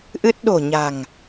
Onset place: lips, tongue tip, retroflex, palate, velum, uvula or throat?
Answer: throat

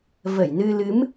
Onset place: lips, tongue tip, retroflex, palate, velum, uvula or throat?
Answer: lips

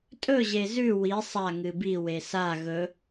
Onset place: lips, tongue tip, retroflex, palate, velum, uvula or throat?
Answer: tongue tip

